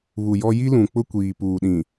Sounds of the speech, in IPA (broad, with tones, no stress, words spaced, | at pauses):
βu˨jɔ˦ ji˦lũ˨k͡pʊ˦ kʷiː˨ puː˨ɗĩ˨